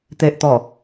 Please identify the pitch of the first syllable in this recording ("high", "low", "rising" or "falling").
low